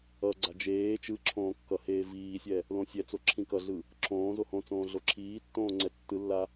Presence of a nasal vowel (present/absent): present